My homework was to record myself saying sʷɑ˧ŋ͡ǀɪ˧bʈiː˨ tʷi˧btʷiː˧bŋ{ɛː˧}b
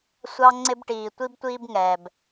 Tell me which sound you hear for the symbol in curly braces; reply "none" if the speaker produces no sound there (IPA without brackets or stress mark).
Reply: ɛː˨